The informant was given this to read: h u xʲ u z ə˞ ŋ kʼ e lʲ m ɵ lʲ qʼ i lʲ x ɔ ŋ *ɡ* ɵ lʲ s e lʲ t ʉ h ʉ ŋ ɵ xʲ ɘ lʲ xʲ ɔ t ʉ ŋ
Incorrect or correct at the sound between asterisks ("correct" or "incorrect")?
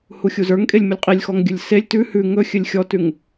incorrect